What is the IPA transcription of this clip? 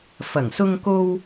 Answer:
f ɐ˨˩ ŋ s ʊ˧ ŋ k o˧ w

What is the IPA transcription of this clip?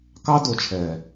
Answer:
k ɑ˦ d o˨ t͡ʃʰ ɛː˨

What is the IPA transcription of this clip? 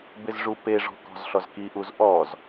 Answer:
b ɪ z ʐ u p e ʐ ɔ̤ k ɔ̤ z ɬ ɔ z k i ʔ u z ʔ ɔ z

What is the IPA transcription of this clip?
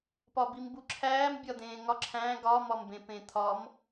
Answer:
p ɒ b i m b u ǁʰ æː m bʲ ɒ d̪ ẽː ŋ ɒ ǁʰ æ̃ ɡ ɒ m ɒ m b ẽ p ẽ t̪ʰ ɒ m

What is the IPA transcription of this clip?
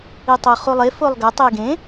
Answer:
i tˤ o χ u lˠ e f o lˠ ɡ ɐ tˤ i ɡ ẽ

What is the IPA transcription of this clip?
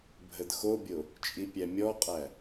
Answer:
bʱ ə d x o bʲ o | t͡ʃʼ i pʲ æ mʲ ɔ qʼ æ

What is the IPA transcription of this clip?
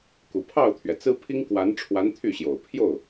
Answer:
k u˨˩ pʰ ɑ˥˩ ʊ̯ t̪ʰ ɥ ɛ˩ t͡s ɹ̩˥ pʰ i˥ ŋ k w a˧˥ n ʈ͡ʂʰ w a˧˥ n t̪ʰ y˥˩ ɕ j o˨˩ ʊ̯ pʰ j o˥˩ ʊ̯

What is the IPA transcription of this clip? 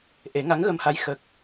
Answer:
ʔ e˨˩˦ ŋ a˧˥ ŋ ɣ ə˧ m h a˧˥ j x ə˨˩ k̚

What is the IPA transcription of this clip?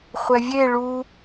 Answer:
χʷ ɛ vʲ e ɭ u

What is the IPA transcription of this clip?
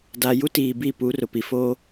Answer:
d aː˨ j u˦ t iː˨ b i˦˨ p u˨˦ r ʊ˨ p i˨ f oː˦

